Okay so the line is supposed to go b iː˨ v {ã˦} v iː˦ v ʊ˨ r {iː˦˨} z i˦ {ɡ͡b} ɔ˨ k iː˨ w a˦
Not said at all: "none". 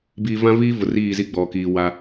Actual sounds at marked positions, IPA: ã˦, iː˦˨, ɡ͡b

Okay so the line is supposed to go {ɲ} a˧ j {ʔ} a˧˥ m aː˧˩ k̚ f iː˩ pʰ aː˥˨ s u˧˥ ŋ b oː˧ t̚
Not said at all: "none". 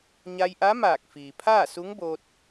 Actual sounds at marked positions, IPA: ɲ, ʔ

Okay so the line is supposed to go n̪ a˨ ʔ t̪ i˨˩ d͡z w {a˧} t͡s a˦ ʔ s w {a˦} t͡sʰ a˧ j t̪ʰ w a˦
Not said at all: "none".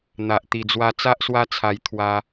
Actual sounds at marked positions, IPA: a˧, a˦

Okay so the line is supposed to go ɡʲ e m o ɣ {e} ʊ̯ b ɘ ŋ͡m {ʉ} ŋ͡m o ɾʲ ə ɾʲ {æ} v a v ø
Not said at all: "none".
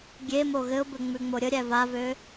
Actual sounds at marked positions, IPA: ɘ, ʉ, æ

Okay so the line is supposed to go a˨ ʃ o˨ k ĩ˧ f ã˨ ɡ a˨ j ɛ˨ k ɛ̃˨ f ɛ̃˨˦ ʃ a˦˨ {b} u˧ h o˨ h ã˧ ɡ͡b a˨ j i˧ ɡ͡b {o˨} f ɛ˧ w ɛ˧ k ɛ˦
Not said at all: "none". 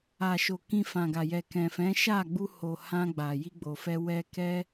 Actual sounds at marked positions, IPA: ɡ͡b, o˨

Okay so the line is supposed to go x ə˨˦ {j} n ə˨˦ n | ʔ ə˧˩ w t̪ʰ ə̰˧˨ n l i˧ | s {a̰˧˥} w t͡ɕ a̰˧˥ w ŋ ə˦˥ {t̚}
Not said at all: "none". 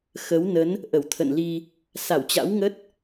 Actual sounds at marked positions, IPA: w, a˧˩, t̚

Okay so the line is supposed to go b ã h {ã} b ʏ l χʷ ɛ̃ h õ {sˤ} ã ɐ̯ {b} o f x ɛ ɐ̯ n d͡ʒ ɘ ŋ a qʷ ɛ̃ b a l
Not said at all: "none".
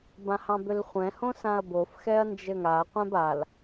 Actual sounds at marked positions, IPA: ɑ̃, s, b

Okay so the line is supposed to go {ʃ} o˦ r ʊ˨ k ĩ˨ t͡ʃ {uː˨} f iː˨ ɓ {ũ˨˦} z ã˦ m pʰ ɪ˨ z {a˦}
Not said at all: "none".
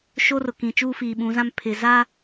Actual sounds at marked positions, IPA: ʃ, uː˦, ũ˨˦, a˦

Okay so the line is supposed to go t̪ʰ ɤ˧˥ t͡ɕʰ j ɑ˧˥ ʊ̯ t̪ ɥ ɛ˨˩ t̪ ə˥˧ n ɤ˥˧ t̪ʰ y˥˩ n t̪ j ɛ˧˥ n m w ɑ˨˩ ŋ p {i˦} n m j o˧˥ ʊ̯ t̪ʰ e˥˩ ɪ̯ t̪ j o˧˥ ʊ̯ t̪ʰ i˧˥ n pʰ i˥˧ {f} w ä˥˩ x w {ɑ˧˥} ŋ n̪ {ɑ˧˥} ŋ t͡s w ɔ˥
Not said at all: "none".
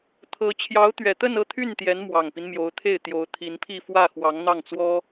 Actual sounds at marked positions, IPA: i˦, f, ɑ˧˥, ɑ˥˩

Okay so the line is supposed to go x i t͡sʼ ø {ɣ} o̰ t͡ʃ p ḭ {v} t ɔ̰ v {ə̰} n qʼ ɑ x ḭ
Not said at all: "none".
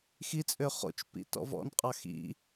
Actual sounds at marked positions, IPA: χ, none, ɔ̰

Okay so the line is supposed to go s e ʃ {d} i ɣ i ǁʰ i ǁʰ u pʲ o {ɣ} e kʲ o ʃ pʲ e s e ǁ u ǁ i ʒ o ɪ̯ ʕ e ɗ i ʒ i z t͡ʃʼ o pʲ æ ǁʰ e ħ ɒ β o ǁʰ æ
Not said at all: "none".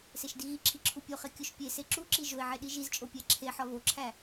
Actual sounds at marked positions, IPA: d, χ

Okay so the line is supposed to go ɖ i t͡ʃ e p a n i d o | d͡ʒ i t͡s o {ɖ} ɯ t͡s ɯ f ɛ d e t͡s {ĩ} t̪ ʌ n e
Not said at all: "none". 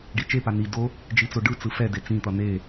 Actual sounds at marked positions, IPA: ɖ, ĩ

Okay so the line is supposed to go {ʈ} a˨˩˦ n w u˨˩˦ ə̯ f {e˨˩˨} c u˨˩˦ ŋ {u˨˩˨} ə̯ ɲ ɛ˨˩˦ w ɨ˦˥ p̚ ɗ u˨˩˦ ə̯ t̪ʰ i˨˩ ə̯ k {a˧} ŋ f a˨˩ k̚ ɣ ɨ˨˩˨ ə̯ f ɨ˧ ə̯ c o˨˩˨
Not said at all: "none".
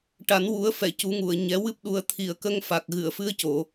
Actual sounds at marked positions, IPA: ʈ, ɛ˨˩˨, u˨˩˨, ə˧

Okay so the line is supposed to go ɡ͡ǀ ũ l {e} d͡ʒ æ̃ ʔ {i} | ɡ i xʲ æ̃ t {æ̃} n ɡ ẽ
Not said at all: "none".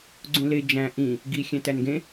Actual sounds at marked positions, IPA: e, ĩ, æ

